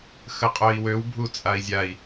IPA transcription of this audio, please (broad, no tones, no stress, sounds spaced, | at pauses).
x ə qʼ œ i̯ w ø w bʱ u t͡sʼ a i̯ zʲ a i̯